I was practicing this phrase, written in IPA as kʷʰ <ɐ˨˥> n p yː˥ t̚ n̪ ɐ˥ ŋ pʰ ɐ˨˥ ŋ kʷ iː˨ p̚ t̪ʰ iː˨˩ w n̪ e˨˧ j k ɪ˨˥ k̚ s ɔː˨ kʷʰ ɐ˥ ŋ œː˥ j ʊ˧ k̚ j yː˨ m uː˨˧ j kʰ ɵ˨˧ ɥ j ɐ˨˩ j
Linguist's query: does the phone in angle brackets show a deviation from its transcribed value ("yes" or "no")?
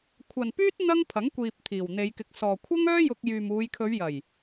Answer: yes